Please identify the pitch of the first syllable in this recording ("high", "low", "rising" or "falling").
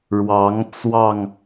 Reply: rising